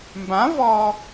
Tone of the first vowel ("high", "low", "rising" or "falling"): rising